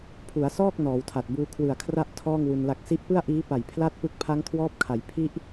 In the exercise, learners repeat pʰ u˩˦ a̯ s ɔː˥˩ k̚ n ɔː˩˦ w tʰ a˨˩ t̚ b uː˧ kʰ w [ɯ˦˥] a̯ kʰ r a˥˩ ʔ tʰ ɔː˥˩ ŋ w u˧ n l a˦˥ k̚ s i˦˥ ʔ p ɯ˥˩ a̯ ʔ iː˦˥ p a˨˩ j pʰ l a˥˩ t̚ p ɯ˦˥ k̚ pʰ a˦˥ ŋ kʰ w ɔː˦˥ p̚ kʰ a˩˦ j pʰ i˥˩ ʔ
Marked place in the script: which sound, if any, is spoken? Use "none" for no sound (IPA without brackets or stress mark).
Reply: ɯ˨˩